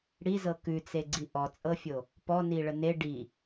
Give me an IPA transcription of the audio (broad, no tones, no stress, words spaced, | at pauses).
ɽizɤ kʉt͡seɡ͡ǀi ʔɔt͡sʼɤfʲo | pɔniɭə ne ɖi